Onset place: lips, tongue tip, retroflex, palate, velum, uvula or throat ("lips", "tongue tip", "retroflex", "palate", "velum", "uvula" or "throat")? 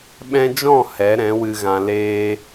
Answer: lips